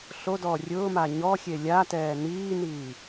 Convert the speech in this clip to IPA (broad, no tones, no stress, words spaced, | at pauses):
ɬodɔː rʲʊːma ɲɔxʲe lʲatɛː niːniː